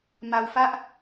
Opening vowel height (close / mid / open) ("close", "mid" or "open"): open